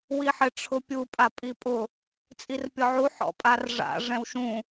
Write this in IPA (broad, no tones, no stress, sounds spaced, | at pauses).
w i ħ ɪ ʈ͡ʂʰ ʊ pʲ u pʼ a pʼ i pʼ ʊ | t͡sʼ i r pʲ ɔ ʕ u ħ ɔ̰ pʼ a r ʐ a̰ ʐ ɛ̃ w ʃ ũ